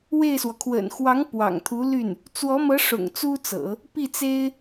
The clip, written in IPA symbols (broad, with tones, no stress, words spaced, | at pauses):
we˥˩ɪ̯swɔ˩ kʰwə̰˨˩nxwɑ˧˥ŋ pwɑ̰˨˩ŋt̪ʰu˧˥ly˥˩n | t͡swɔ˧˥mɤ˧˥ ʂʊ̰˨˩ŋt͡su˥t͡sɤ̰˨˩˦ | pi˥˩t͡se˥ɪ̯